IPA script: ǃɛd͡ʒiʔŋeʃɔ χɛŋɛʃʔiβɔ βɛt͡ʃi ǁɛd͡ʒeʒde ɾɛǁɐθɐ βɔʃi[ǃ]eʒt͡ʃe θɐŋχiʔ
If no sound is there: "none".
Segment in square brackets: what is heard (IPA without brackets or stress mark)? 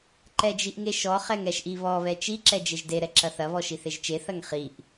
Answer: θ